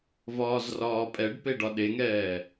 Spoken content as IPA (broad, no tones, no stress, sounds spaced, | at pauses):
v ɒː z r ɒː pʼ ɛ ɖ p e ɖ ɒ ɗ e ŋ ɛː